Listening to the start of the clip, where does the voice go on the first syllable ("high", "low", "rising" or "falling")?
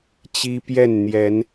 high